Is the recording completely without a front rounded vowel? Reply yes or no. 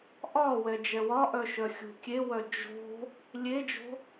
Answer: no